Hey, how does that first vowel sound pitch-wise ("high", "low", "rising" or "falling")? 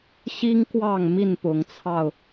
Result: high